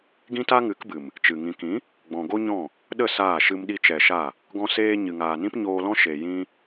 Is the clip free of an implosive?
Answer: no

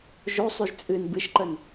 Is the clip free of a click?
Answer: no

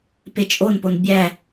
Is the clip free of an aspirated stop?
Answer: yes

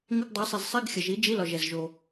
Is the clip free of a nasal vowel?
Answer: yes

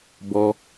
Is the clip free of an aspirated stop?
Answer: yes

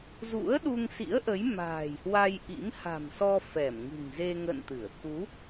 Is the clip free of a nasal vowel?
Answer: yes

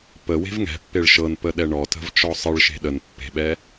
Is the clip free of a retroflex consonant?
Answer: no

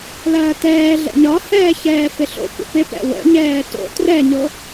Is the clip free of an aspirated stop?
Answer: yes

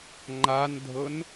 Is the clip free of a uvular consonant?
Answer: yes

